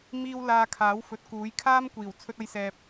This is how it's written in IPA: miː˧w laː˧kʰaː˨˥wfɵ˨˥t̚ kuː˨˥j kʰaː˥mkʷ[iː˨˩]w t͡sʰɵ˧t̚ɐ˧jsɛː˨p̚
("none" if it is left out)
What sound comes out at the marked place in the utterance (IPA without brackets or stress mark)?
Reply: iː˨˩